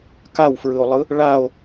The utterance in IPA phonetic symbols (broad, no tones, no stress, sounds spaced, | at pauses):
k a w f ɹ ɯ o̯ lˠ ɯ | ɭ a o̯